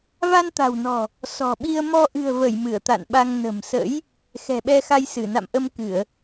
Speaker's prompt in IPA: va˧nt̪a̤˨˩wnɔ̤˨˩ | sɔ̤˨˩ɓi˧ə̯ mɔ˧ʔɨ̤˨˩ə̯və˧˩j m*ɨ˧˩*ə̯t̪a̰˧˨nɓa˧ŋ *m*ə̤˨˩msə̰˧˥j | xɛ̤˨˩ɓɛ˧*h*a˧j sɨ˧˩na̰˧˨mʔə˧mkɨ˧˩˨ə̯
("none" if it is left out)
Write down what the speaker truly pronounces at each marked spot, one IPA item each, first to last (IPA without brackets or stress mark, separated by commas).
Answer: ɨ˧˩, n, x